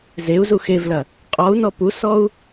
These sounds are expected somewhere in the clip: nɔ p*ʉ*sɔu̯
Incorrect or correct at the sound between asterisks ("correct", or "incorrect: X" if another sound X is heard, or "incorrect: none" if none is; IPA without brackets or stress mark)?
incorrect: u